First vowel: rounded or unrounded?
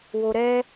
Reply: rounded